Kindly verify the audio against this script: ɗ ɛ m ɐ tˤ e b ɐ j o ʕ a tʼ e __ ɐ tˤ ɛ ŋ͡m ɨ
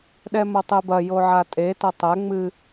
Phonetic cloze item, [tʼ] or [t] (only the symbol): t